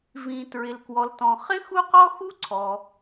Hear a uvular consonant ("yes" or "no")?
yes